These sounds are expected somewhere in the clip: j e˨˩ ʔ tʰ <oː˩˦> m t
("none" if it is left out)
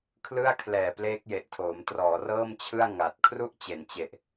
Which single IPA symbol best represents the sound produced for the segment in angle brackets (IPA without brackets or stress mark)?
oː˩˦